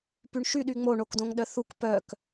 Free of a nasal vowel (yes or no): no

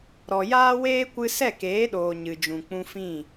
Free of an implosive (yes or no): no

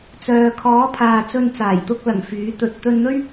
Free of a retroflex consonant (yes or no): yes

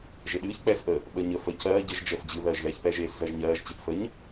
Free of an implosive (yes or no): no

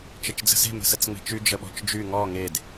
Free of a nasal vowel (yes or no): yes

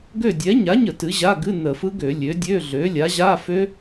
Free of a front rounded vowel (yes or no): no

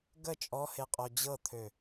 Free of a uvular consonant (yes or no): no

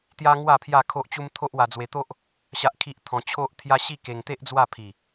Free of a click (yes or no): yes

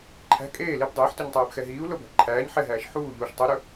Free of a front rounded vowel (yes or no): yes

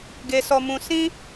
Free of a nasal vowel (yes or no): no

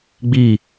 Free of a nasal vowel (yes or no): yes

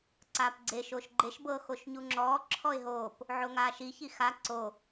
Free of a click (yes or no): no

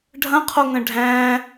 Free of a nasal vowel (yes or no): no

